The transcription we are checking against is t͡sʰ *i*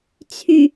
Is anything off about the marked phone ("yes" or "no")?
yes